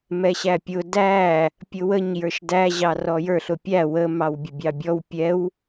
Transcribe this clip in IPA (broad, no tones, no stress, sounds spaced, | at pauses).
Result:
m ɛ ɕ æ pʲ ʊ d æ | pʲ ʊ w ə ɲ j ə˞ ʃ d æ ʑ ɑ r ɔ j ə˞ ɬ ʊ pʲ æ w ə m ɑ w bʲ ə bʲ ɑ bʲ ɔ w pʲ ɛ w